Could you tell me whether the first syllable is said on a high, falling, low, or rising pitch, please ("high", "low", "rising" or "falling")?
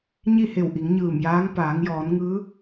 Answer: falling